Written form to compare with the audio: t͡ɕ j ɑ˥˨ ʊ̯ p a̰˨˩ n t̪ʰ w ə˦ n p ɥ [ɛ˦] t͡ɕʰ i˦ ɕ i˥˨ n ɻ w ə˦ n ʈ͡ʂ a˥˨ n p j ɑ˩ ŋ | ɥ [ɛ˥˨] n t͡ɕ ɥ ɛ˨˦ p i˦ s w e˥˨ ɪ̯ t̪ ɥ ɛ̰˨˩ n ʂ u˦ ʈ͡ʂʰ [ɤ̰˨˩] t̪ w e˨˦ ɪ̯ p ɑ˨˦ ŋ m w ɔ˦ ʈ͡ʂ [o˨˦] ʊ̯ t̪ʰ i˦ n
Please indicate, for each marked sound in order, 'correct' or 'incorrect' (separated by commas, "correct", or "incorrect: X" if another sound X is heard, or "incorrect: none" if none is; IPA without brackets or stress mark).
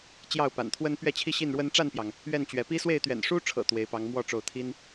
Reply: incorrect: ɛ˥˨, correct, correct, correct